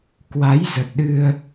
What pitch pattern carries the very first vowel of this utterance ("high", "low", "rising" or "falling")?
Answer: rising